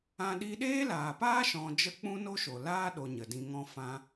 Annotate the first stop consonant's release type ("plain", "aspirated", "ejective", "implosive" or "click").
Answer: implosive